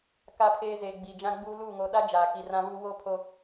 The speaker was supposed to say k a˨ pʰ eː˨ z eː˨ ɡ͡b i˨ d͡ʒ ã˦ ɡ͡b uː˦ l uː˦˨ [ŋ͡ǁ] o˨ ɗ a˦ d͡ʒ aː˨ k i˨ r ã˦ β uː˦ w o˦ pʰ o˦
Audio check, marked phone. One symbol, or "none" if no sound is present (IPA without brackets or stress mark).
ŋ